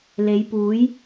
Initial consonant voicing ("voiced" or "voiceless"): voiced